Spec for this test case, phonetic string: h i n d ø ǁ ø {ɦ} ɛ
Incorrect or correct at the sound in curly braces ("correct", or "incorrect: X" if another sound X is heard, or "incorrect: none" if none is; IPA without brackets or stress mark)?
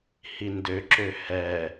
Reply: incorrect: h